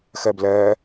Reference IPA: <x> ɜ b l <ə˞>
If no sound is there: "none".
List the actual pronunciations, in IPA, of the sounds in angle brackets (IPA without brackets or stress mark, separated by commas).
x, ɜ